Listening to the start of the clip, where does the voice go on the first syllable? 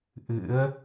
rising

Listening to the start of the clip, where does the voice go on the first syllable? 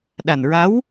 low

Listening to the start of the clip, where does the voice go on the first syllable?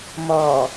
low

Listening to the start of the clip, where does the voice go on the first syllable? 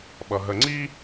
low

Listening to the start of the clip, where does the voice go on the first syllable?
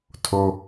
high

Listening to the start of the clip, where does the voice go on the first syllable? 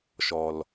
low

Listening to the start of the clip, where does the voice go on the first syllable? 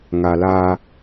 low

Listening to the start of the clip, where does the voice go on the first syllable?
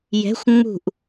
rising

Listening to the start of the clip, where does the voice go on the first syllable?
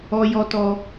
high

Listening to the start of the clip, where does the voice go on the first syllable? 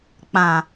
low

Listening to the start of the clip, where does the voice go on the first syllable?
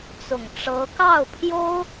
low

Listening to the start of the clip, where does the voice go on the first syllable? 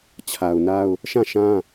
low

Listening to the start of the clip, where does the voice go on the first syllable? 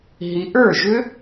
rising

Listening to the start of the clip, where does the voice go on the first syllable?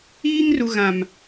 high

